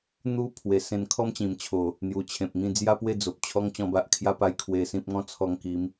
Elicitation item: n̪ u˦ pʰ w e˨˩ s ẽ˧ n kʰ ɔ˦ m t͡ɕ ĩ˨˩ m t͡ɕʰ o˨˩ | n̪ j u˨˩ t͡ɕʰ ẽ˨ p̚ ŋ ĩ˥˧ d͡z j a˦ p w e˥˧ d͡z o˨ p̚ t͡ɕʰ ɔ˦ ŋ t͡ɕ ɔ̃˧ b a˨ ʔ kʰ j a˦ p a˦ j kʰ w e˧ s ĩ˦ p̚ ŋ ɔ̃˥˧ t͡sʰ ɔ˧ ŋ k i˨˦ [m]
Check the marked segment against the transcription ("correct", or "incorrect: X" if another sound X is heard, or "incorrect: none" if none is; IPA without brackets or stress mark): correct